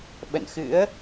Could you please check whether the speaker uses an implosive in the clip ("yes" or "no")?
yes